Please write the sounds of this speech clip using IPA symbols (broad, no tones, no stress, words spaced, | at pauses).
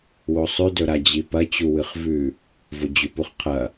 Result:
wosˤʉ dɵɾad͡ʑipɐ t͡ɕuwɨχvʉ | vod͡ʑʉpuχqʰɐ